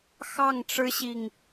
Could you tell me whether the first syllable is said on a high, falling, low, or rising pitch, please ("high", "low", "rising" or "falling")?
falling